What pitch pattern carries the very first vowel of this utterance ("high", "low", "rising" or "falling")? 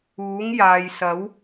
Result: rising